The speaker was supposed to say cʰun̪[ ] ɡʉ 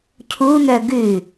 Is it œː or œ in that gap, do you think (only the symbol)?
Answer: œ